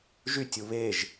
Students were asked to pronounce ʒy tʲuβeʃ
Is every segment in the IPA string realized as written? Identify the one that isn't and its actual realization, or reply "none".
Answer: ʃ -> ʒ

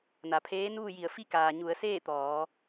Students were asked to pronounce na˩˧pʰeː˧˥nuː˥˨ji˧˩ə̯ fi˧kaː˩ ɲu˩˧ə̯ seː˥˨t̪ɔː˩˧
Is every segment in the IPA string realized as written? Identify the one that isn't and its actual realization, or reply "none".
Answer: none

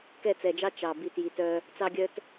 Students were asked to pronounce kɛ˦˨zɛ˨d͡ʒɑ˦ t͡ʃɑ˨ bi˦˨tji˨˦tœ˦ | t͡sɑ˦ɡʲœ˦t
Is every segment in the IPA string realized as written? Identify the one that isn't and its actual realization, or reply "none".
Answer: z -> t͡s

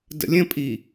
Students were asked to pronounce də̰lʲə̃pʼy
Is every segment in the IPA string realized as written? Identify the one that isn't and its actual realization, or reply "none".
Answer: y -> i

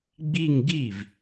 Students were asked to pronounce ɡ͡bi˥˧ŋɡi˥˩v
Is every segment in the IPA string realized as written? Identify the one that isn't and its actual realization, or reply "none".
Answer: none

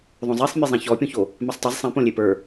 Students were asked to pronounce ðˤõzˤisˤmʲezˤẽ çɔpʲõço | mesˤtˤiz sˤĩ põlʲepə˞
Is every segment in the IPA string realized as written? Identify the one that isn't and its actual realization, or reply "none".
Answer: none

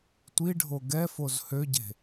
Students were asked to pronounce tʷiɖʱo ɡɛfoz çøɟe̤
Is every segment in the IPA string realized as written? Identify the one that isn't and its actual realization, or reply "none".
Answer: ç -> h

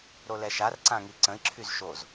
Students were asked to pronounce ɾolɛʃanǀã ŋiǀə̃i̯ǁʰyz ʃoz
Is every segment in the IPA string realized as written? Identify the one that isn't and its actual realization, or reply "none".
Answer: n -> r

